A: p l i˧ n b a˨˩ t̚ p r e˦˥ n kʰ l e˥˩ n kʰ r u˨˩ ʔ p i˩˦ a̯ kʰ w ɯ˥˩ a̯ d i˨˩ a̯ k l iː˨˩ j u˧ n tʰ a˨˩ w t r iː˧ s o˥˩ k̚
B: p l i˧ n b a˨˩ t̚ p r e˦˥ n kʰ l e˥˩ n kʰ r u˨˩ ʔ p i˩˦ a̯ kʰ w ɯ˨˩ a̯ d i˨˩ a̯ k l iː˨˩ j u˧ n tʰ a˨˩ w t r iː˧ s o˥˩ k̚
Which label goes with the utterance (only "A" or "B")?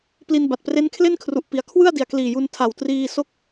A